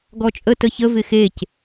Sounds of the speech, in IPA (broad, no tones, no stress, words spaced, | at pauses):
ɡɔt͡ʃʼə təçə vɪxec